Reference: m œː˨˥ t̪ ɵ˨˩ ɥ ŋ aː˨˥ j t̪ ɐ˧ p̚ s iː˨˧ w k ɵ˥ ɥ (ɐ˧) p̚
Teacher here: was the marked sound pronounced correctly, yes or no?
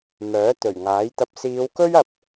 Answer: yes